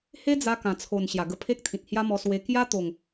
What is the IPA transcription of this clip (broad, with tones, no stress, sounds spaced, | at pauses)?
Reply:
h e˦ d͡z a˧ k ã˨˩ t͡sʰ o˨˩ n ɕ j a˨˩ ɡ ə˧ pʰ e˦ k̚ t̪ʰ ĩ˨ t̚ h j a˦ m ɔ˧ s w e˧ k j a˦ t̪ o˨˩ ŋ